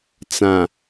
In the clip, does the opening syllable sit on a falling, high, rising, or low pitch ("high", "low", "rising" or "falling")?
low